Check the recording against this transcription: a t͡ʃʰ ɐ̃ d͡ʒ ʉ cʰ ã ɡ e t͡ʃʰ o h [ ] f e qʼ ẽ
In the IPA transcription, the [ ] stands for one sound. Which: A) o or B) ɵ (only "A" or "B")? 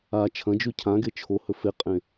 B